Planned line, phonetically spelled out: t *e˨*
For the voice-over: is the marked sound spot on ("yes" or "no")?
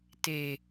yes